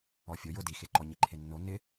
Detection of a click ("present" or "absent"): present